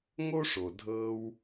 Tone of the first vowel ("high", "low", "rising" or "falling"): high